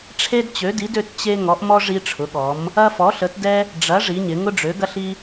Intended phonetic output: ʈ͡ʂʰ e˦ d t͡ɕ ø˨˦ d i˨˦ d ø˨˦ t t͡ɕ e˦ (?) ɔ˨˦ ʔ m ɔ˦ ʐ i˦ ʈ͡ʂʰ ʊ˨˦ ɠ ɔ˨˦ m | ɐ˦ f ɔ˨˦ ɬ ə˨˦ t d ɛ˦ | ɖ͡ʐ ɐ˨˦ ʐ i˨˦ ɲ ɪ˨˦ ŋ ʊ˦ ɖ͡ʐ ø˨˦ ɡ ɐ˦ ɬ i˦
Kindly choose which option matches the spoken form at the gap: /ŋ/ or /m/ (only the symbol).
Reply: ŋ